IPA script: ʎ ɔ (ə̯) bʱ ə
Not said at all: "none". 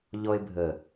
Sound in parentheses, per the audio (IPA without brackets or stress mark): ɪ̯